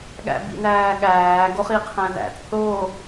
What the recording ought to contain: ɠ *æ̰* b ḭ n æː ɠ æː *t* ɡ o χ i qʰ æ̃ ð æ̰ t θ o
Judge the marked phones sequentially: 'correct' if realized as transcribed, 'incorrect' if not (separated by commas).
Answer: correct, incorrect